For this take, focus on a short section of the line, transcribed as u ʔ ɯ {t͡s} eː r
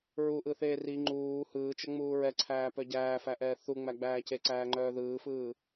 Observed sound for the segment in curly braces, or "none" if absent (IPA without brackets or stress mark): θ